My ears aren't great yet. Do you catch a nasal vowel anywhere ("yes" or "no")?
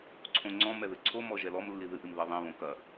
yes